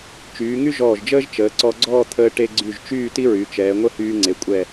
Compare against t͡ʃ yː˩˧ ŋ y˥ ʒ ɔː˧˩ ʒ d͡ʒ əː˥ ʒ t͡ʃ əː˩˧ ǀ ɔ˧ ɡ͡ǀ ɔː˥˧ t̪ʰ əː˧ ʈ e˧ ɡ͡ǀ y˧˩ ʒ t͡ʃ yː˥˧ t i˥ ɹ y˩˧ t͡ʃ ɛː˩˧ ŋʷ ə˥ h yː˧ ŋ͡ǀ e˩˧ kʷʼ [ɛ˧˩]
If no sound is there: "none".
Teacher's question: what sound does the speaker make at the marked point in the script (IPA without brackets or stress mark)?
ɛ˧˩